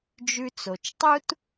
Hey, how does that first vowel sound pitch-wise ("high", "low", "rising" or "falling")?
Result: high